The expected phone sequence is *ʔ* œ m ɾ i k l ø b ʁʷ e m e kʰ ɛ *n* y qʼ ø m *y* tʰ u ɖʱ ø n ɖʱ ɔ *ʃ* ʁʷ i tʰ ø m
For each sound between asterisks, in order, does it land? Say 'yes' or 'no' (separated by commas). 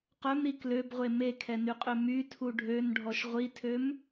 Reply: no, yes, yes, yes